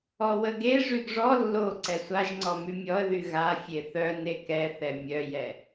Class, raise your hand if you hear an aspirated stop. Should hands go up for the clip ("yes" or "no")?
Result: no